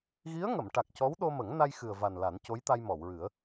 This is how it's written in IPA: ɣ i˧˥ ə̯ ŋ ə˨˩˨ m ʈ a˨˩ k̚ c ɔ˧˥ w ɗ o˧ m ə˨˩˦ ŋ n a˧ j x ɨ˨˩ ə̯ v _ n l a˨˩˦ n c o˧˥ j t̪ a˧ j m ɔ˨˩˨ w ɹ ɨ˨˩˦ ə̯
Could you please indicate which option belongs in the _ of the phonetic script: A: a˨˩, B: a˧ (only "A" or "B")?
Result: A